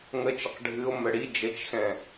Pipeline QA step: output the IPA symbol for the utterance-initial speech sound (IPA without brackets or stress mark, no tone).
ŋ